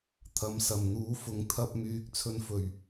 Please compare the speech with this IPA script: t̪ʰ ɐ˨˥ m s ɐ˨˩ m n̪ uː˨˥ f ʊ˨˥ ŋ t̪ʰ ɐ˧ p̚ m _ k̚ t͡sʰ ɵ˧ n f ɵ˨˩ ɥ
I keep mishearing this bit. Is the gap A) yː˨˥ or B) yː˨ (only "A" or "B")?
A